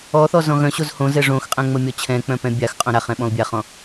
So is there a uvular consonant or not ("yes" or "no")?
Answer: yes